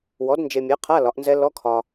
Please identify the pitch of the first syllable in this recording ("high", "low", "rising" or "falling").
rising